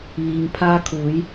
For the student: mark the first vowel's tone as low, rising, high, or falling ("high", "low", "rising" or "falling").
low